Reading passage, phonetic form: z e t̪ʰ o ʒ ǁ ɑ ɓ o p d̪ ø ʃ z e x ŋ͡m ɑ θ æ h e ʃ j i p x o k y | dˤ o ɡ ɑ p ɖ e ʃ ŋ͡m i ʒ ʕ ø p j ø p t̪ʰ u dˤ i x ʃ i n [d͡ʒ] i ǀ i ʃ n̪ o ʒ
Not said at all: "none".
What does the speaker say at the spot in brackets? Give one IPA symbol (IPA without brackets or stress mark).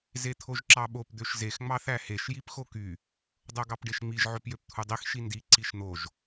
d